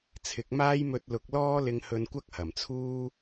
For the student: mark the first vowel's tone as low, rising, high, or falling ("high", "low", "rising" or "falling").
rising